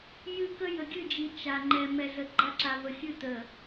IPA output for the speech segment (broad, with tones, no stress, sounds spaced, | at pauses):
j ɨ˦ k ə˦ j ə˨ ɡʲ ɨ˦˨ d͡ʒ i˨ t͡ʃ a˨ ŋ͡ǃ ɛ˨ m ɛ˨ ɮ ə˨ ɡ͡ǃ a˦ ǁ a˨ v ə˨ xʲ ɨ˦˨ t̪ ə˨